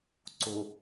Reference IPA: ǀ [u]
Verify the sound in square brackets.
incorrect: ʊ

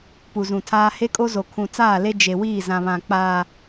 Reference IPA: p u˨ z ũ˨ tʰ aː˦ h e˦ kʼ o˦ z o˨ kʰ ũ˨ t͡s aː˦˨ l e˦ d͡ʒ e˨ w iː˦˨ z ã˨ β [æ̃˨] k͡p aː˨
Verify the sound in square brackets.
incorrect: ã˨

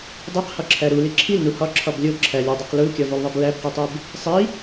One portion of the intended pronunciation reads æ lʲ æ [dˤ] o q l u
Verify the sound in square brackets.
correct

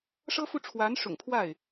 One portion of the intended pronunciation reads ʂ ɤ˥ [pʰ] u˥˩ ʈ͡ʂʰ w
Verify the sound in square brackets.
incorrect: f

